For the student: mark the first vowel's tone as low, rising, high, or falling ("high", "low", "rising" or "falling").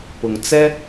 low